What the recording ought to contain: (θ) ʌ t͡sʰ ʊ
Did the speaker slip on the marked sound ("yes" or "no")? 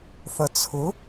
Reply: no